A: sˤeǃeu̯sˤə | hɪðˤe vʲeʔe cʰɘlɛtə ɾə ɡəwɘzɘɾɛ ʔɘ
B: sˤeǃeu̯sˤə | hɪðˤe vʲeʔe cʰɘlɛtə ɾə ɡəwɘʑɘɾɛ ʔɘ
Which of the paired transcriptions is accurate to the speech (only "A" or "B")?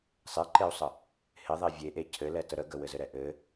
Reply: A